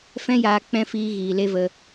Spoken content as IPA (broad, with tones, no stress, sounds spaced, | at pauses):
f ɛ̃˦ j aː˧ k͡p ɛ̃˦ f iː˧ ɣ iː˨ l e˦ v ə˧